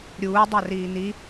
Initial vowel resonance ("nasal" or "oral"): oral